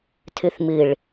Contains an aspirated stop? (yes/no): yes